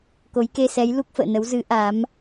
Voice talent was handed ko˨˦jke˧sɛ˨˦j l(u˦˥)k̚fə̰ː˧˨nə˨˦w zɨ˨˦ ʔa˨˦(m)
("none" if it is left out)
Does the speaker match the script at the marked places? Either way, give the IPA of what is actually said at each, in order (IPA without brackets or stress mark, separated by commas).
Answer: u˦˥, m